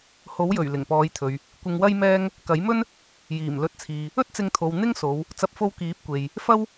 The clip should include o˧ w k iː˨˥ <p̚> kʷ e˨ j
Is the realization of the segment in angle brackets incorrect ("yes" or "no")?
no